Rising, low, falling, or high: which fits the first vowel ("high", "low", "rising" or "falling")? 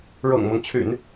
low